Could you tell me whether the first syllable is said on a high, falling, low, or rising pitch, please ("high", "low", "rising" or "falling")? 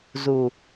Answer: low